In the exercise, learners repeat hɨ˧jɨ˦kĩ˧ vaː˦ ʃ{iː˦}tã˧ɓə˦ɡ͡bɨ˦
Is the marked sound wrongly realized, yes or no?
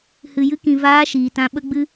yes